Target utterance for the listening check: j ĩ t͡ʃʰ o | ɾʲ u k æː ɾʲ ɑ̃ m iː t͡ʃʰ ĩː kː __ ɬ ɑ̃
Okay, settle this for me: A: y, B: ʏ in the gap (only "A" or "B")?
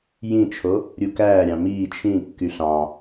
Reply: A